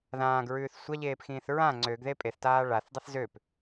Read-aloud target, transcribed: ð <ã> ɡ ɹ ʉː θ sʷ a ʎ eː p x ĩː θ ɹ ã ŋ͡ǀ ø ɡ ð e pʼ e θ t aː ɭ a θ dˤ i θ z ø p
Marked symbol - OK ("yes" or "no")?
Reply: no